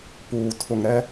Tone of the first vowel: low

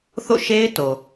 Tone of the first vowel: falling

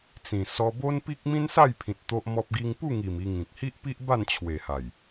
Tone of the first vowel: low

